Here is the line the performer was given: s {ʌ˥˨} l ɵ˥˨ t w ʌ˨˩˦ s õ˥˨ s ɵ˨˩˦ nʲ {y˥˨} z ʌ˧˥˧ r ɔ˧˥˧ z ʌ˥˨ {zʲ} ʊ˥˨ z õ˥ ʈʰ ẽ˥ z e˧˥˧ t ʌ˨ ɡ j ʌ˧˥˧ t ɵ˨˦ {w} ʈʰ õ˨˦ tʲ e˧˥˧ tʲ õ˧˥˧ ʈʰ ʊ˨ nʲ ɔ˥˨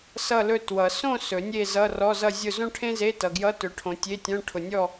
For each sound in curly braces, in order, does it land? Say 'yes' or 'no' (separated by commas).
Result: yes, no, yes, no